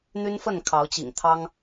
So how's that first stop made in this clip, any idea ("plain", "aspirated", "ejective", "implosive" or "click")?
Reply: aspirated